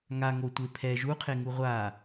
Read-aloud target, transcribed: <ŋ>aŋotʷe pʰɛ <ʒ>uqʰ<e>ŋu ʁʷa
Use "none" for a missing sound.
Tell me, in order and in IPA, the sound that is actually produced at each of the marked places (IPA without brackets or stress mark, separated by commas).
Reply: ŋ, ʒ, e